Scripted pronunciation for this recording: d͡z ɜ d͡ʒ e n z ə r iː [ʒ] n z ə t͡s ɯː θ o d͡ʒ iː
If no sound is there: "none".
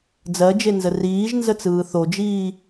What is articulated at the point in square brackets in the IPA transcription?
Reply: ʒ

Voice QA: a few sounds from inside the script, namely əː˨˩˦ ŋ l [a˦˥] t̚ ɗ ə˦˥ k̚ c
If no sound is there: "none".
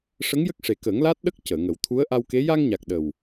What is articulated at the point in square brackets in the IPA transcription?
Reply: aː˦˥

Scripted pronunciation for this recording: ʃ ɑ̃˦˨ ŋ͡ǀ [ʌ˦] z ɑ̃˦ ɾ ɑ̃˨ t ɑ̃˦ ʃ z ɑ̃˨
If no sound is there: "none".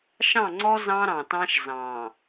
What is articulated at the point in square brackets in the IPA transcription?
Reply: ɔ˦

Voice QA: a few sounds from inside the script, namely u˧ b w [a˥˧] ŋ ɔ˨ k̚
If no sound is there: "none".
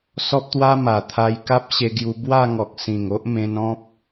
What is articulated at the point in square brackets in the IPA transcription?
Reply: a˥˧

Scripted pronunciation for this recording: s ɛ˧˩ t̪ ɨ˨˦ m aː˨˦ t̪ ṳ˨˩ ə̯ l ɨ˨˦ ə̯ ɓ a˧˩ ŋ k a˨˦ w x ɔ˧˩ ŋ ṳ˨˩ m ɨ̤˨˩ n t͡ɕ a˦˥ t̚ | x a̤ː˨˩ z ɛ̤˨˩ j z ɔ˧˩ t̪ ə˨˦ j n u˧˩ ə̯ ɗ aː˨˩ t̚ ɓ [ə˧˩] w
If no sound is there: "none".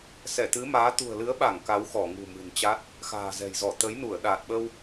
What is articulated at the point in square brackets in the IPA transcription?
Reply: ə˧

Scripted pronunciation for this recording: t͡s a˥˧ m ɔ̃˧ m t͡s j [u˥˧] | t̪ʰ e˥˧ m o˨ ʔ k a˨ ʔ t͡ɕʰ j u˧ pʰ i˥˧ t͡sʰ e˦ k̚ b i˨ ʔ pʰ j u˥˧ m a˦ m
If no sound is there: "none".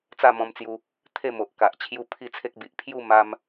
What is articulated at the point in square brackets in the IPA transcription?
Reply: u˧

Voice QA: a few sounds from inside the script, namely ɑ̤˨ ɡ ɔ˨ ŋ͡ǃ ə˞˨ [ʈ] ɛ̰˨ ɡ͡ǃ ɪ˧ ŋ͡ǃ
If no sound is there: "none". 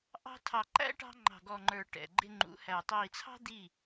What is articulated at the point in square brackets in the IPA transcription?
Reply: ʈ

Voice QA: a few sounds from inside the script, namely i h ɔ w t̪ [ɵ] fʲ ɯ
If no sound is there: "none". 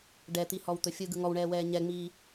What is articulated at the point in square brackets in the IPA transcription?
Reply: ɵ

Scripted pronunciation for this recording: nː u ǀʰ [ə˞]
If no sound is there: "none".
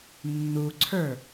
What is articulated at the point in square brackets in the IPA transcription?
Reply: ə˞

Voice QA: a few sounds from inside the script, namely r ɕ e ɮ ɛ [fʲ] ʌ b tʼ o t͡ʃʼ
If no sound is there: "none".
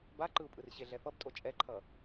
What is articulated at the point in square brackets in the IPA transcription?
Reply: f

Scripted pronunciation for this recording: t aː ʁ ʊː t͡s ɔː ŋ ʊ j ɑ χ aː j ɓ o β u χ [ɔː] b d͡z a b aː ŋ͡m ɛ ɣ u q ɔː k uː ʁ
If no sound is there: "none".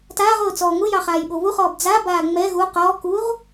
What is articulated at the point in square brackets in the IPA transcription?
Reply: ɔː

